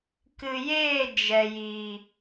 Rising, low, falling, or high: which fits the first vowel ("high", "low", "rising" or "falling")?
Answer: low